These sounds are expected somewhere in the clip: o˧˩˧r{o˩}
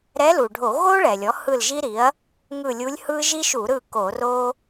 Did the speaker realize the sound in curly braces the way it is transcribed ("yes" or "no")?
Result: no